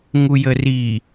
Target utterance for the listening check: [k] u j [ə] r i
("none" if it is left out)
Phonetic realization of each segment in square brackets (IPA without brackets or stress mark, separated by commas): ŋ, ə